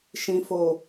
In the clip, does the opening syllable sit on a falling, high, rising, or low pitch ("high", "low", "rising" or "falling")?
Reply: low